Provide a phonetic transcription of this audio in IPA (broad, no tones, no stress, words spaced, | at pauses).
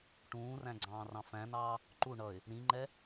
ʈũːræ̃ ɡ͡ǀɑ̃ːrɑ̃fæ̃nɑː | ǃu ɳʌɪ̯ | ɾĩŋ͡ǃɛ